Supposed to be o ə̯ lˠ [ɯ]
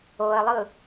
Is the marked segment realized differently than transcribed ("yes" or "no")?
no